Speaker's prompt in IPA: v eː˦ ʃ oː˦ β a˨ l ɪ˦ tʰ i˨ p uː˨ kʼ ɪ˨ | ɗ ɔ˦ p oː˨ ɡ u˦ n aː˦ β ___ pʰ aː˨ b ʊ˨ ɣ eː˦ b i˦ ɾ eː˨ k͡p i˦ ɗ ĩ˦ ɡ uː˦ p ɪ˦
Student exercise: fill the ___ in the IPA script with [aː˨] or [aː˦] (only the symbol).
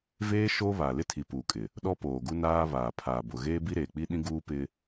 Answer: aː˨